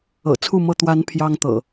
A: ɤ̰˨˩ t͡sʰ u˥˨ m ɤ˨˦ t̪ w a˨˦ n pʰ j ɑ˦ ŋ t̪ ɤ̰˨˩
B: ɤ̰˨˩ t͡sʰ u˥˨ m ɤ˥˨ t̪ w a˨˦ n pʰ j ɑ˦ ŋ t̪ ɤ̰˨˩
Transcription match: B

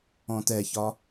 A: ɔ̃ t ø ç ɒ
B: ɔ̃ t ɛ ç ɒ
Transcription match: B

